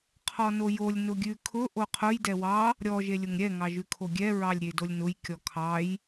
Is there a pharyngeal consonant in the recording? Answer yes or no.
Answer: no